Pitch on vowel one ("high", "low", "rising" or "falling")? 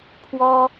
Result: high